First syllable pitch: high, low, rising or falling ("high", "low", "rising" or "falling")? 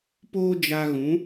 high